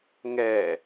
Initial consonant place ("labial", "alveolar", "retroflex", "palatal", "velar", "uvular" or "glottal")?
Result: velar